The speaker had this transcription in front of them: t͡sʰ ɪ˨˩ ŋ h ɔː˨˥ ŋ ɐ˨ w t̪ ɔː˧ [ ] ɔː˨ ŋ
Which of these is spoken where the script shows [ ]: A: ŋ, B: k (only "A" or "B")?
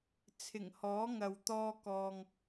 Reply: B